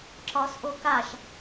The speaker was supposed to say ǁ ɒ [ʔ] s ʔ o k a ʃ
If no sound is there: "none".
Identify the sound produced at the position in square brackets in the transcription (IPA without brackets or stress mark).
none